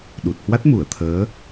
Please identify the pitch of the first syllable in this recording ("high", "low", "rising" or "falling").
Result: low